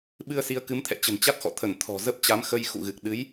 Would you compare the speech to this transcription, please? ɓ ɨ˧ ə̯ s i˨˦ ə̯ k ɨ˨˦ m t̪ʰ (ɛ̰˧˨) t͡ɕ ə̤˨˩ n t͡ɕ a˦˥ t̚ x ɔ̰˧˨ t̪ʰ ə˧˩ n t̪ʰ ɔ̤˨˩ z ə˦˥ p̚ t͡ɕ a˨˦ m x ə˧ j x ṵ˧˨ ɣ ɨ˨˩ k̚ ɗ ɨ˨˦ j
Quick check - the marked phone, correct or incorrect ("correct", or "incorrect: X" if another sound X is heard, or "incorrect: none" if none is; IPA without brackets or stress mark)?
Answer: correct